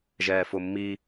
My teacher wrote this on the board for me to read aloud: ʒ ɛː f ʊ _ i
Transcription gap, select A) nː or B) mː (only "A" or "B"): B